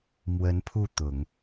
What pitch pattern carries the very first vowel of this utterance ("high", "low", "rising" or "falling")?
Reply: rising